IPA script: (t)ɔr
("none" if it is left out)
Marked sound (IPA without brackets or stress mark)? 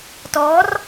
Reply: t